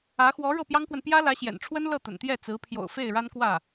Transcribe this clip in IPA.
ä˧˥ x w ɔ˧˥ ɻ ɤ˥˩ p j ɑ˥ ŋ k w ə˨ n p j ä˥ l ä˧˥ ɕ j ɛ̰˨˩ n ʈ͡ʂʰ w ə˥ n l ɤ˥˩ t̪ ə̰˨˩ n t̪ j ɛ˥˩ t͡s ɹ̩˧˥ pʰ j o̰˨˩ ʊ̯ f e˥˩ ɪ̯ ɻ a˥ n k w ä˥˩

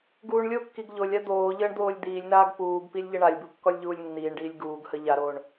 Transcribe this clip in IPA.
ɡ uː ɳ lʲ o kː i ɡ ʎ o lʲ a d̪ oː ʎ əː ɳ d̪ oː lʲ d̪ iː lʲ n aː ɡ p uː ɡ p i lʲ ʎ ə ɳ a lʲ b u kː ɔ lʲ ʎ uː lʲ nː iː ɳ ɖ iː lʲ ɡ uː ɡ h ə ʎ a ɾ oː ɳ

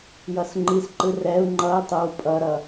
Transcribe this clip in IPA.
j ʌ s ŋ͡ǃ i s ǃ ɯ r ɛ u̯ ŋ͡ǃ ʌ i̯ tˤ o w pʼ ʌ ɾ ʌ

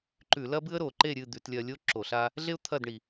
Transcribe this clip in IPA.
ǃ ʉ˧˩˧ l ɐ˥ b ɨ˥ ə̯ ɾ o˩ ǃ e˥˨ ɾʲ ɨ˥˨ d̪ ʉ˩˧ t lʲ ɐ˧ lʲ o˥ ǁ o˧˩˧ ɬ a˥ | ɮ e˥ ʊ̯ t̪ʰ ɐ˥˨ d ɳ i˩

